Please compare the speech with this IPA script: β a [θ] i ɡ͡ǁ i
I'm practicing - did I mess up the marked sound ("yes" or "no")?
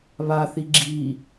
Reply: no